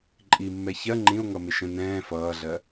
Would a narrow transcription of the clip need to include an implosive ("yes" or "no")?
no